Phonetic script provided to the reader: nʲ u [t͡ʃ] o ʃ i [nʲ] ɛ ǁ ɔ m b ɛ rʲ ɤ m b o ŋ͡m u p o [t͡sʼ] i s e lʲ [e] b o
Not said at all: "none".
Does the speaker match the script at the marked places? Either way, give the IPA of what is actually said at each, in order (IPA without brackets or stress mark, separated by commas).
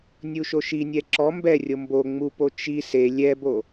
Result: ʃ, nʲ, t͡ʃ, ɛ